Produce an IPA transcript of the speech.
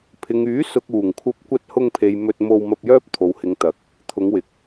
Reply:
pʰ ɪ˨ ŋ yː˨˥ s ʊ˨ k̚ uː˨˩ ŋ kʷʰ ɐ˧ p̚ kʷ ɐ˧ t̚ h ʊ˧ ŋ pʰ e˨ j m ɵ˧ t̚ m o˧ w m ɐ˧ p̚ j œː˥ p̚ t̪ʰ o˨ w h ɪ˨ ŋ t̪ ɐ˨˥ k̚ | t̪ʰ ʊ˨˧ ŋ w ɪ˨ k̚

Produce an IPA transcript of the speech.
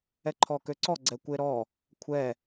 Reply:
ɛ ǃʰ ɔ k ø ǀ ɔ ɡ͡ǀ ɛ kʷ e ɾ ɔ | kʷʰ ɛ

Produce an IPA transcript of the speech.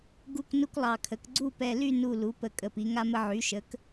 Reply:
ɡ u˦˨ k n u˦ k lˠ ɑ˨˩ kʰ ə˩˧ k ɡ͡ǀ u˦˨ p ɛ˨˩ l y˦˨ n u˨˩ l u˩˥ p ə˨˩ kʼ ə˨˩ p i˩˧ ŋ a˦ m ə˦ ʕ y˩˥ ʃ ə˩˥ k

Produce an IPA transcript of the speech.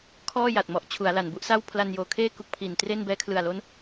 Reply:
kʰ ɔː˥˩ j a˨˩ t̚ m ɔ˨˩ ʔ t͡ɕʰ u˩˦ a̯ l a˨˩ n b u˥˩ ʔ s a˥˩ w pʰ l a˧ n j oː˨˩ kʰ eː˥˩ k u˦˥ k̚ pʰ i˨˩ n t r e˥˩ n b ɛː˦˥ kʰ l ɯ˨˩ a̯ l o˦˥ n

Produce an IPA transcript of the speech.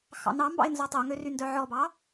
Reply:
x ɑ̰ n ɑ m b ɑ̰ ɪ̯ n z ɔ tˤ o ŋ ø r y n d œ ʕ ɔ b ɑ

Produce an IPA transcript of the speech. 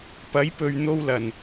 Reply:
p ɐ˨˥ j p ɵ˨ ɥ n̪ o˥ w l ɐ˨˩ n

